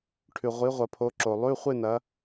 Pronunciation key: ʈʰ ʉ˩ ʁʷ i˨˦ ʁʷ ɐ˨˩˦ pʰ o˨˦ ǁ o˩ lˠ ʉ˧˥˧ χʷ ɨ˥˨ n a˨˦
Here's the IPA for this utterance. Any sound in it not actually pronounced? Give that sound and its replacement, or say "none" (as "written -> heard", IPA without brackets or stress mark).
a˨˦ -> ɐ˨˦